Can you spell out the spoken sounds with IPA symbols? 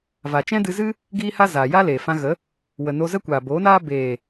v a˨ t͡ʃ ɛ̃˦ d ɨ˧ z ɨ˦ | ɡ iː˦ h a˦ z aː˨ j a˦ l eː˨ f ã˧ ɣ ə˨˦ | w ə˨ n o˧ z ə˦ kʷ aː˨ b oː˨˦ n aː˦ b eː˨

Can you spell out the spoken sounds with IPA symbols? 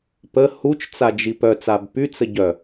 p ə h u t͡ʃ t͡s a d͡ʒ i p œ t͡s a b p y t͡s ə ɟ œ

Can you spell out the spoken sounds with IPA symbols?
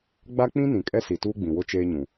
ɡ͡b a˦ k͡p ĩ˦ n ĩ˨ kʼ ɛ˦ s i˨ t uː˦ ɡ͡b ĩ˨ w ʊ˦ t͡ʃ eː˦ ɲ ũ˨

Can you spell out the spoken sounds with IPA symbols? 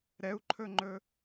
ɾ ɛ u̯ ǃʰ ɵ ŋ͡ǃ ɵ

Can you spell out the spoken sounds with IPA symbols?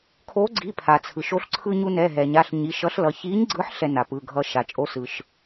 kʰ o˨˥ ɡ͡ǀ i˩˧˩ pʰ a˩ t͡sʰ ɯ˩ ʃ o˧ ɬ ǀʰ ɯ˧ ɲ u˧ n ɛ˩˧˩ ɦ ɛ˩ ɲ a˩˧˩ ɬ ɲ i˩˧˩ ʃ ʌ˨˥ ɬ l ʌ˩˧˩ ç i˨˥ ɲ ɡ͡ǀ ɯ˨˥ ħ ɬ ɛ˧ n a˩ p ɯ˩˧˩ ɡʱ ʌ˧ ʃ a˩ t͡ʃʼ o˨˥ s ɯ˩ ʃ

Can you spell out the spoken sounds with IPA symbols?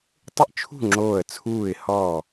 tˤ ɪ˥˨ ʔ t͡ʃʰ ṳ˥˨ ŋ͡ǁ oː˧˩ ə̯ t͡sʰ uː˧˩ ɪ̯ h ɔː˧˩

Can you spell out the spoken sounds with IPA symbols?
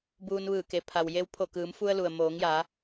b uː˧ n ʋ ɯː˧˩ k e˩ pʰ a˩ w j e˧˥ w pʰ o˧˩ k ɯː˩˧ m f u˧ ə̯ l u˩ ə̯ m oː˩˧ ŋ j a˩˧

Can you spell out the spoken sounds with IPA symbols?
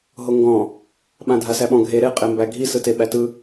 ɦ o ŋ ɡ ɔ̃ | ɓ ã dʱ a s æ ɓ ɔ̃ ɡʱ e ɾ e qʼ e m b æ ɡʱ i s ɯ t e ɓ æ t ɯ

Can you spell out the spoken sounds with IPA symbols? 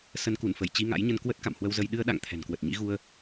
s ə˨˦ n k u˧˩ n f ə˧˩ j t͡ɕ i˧ ŋ a̰˧˥ j ɲ ə˧ n k w ə˦˥ t̚ k a̰˧˨ m h w ə˧ w z ə˧ j ɗ ɨ˧ ə̯ ɗ a̰˧˨ ŋ t̪ʰ ɛ̤˨˩ n k w ə˨˩ t̚ ɲ ḭ˧˥ ɣ u˧ ə̯

